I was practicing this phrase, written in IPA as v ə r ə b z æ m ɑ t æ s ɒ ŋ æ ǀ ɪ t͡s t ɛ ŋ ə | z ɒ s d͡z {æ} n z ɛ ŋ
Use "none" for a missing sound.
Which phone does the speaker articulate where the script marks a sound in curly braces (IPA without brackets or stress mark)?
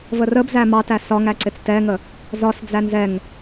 æ